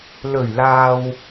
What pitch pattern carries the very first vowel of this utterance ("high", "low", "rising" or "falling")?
low